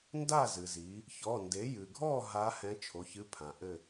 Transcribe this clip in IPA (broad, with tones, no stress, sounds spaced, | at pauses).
n d a˥˨ z ɨ˩ z i˩˧ | ç ɔ˩˧˩ n d e˩˥ j ɨ˩ ɡʱ ɔ˥˨ ɦ a˧˥ h ɛ̃˧˥ t͡ʃʰ o˩˧˩ ç ɨ˧˥ pʰ ã˩ ʔ ɘ˥˨